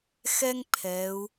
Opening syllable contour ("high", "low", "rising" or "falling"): high